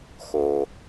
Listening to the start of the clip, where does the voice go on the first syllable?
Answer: low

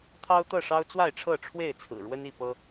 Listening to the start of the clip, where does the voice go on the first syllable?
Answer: high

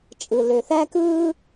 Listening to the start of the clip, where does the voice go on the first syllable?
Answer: low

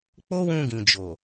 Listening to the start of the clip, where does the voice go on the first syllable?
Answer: high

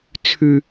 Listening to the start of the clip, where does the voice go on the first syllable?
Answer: high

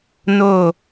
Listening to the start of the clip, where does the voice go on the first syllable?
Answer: falling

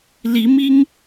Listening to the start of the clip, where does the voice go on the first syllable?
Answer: rising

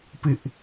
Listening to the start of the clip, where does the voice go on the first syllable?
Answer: high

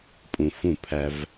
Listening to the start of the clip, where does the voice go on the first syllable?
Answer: low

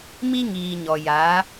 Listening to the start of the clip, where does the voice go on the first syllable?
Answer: high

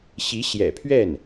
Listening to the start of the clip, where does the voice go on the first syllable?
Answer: rising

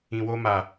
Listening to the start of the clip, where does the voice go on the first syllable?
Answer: low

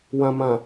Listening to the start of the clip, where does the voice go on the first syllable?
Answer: low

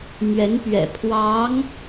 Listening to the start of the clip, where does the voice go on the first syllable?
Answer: rising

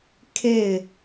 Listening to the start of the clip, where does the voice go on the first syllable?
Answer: falling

